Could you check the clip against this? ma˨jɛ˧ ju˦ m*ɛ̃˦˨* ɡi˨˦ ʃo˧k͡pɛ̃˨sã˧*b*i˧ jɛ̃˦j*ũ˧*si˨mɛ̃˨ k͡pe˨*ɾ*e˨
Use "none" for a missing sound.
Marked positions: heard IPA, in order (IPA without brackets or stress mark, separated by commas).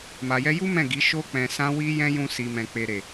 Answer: ɛ̃˦˨, w, ũ˧, ɾ